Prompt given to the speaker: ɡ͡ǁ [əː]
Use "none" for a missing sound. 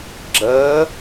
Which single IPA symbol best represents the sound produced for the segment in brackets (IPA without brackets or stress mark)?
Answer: əː